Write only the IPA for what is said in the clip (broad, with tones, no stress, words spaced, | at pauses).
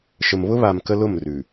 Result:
ʃə˨mβʊ˦βa˨m kə˦lʊ˦˨mrʉ˨